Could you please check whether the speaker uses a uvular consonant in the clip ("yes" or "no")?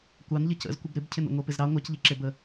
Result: no